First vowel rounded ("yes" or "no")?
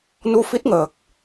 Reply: yes